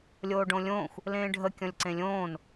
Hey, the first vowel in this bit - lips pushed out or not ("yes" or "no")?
yes